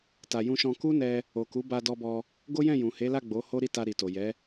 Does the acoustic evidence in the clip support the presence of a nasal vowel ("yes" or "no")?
yes